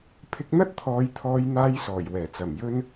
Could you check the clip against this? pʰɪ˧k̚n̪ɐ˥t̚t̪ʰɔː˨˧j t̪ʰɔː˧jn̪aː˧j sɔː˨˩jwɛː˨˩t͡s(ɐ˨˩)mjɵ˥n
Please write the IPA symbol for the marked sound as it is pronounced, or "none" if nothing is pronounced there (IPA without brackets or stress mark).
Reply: ɐ˨˩